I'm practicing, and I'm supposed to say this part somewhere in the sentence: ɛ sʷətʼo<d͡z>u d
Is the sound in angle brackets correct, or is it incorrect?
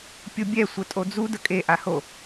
correct